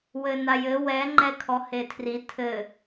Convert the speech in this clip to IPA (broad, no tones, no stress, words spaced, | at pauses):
wɘnajɘ wɛ ŋ͡ǃɛkʰɔhetʰri tʰɘ